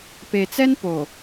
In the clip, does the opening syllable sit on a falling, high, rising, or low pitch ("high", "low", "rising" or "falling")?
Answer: low